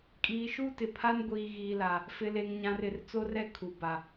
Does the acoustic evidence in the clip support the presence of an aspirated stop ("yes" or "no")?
yes